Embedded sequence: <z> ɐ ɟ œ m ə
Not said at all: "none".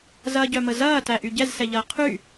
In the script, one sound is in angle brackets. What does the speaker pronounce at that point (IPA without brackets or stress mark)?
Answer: z